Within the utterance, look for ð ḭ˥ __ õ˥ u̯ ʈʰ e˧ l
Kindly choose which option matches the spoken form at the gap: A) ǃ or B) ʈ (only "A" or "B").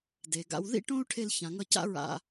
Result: B